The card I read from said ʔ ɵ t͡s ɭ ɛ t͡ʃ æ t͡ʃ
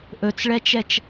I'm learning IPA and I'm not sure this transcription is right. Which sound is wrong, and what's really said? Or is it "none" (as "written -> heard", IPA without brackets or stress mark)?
æ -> ɛ